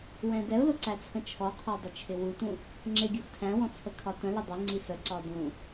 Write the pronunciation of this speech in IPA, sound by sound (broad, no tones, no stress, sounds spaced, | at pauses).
w ɛ̃ d ɛ ʊ̯ l ʊ ǀ æ t͡sʰ ə̃ t͡ʃʰ ɔ qʰ ɒ dˤ ʊ t͡ʃʰ ɪ w u t ũ | ŋ͡ǁ ɪ ɡʲ u x tʰ æ̃ w ɔ̃ t͡sʰ ə kʰ ɒ t ə̃ l ɪ dˤ ɪ ŋ͡ǀ i s ə ǀ ɒ d ũ